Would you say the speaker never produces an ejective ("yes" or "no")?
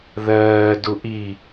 yes